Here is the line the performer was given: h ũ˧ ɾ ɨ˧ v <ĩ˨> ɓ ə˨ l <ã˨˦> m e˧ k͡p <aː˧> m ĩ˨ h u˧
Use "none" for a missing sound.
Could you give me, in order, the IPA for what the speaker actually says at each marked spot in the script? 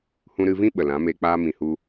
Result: ĩ˦, ã˨˦, aː˧

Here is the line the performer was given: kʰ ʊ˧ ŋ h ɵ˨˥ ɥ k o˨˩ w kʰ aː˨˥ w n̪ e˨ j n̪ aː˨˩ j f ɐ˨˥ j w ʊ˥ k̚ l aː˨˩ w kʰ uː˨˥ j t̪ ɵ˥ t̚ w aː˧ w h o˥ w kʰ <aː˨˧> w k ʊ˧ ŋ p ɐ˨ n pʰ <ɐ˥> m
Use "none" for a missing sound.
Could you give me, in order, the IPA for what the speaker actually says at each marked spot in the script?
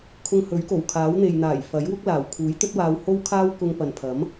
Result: aː˥, ɐ˨˥

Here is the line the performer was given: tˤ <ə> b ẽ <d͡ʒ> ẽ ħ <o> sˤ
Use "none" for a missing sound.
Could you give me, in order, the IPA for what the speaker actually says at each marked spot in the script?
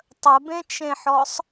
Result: ə, t͡ʃ, ɔ

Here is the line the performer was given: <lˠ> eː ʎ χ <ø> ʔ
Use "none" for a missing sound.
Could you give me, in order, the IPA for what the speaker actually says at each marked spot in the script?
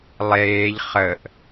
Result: lˠ, ə

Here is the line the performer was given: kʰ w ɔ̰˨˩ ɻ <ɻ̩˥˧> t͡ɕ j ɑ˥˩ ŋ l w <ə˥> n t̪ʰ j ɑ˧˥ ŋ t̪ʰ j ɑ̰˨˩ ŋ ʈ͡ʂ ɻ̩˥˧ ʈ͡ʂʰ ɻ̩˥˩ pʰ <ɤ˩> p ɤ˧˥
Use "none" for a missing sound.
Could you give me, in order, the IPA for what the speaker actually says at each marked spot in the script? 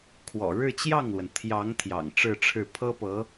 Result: ɻ̩˥˧, ə˩, ɤ˥

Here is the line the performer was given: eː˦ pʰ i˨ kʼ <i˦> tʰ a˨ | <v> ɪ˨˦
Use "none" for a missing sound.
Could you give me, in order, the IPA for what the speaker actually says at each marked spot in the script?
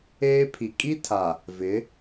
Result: i˦, v

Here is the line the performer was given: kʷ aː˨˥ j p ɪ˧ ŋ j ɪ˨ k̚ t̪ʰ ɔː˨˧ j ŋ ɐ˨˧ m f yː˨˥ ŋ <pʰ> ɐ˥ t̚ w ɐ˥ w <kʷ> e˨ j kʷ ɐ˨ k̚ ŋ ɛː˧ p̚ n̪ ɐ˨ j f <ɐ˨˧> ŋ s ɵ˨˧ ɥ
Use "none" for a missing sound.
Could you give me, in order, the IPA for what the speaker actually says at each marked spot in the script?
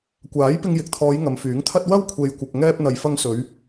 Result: t̪ʰ, kʷʰ, ɐ˧

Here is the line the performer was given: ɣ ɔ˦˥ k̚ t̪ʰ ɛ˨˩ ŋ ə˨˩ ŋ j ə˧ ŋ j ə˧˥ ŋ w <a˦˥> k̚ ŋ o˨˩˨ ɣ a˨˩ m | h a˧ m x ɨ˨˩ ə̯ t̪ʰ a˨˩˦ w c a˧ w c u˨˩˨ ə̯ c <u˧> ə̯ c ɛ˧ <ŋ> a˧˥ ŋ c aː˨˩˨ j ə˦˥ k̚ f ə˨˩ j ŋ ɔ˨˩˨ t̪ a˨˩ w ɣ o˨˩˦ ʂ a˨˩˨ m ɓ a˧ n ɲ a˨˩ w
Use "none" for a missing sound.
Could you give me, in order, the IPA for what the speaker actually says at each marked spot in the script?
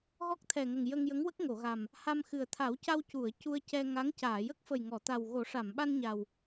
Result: ə˦˥, u˧, ŋ

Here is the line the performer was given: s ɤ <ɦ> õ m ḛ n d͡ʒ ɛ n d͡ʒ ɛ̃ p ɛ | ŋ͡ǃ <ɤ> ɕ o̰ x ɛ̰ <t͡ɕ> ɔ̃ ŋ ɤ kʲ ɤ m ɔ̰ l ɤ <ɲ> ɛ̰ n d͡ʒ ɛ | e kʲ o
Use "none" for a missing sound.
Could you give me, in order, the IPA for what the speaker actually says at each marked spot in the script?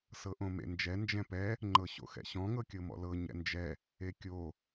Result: ʔ, ɤ, ɕ, ɲ

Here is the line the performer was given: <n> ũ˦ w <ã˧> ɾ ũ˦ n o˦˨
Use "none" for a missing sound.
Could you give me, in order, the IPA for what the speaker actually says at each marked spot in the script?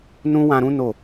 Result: n, ã˧

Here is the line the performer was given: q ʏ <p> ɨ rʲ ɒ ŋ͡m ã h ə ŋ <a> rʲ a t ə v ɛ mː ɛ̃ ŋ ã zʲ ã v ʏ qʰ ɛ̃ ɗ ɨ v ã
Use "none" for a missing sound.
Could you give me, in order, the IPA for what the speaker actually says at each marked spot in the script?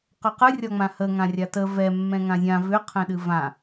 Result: q, ã

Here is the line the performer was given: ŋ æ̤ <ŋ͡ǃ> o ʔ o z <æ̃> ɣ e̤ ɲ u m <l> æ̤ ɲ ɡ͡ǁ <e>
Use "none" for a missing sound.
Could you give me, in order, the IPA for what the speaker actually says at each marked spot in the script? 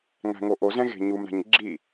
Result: ŋ, ɛ̃, ɾ, i

